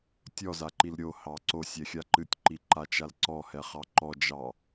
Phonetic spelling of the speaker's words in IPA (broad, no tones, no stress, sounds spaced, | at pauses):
tʲ ɔ z a ǃ i l ɾʲ o h ɑ ǀ o sʲ ɛ xʲ a ǃ ɨ tʲ ǃ i ǃ a t͡ʃ a l ǀ ɔ h ɛ χ ɑ ǃ ɔ d͡ʒ ɑ